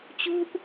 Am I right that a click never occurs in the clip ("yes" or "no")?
yes